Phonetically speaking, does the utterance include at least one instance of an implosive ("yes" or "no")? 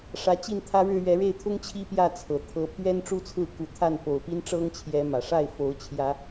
no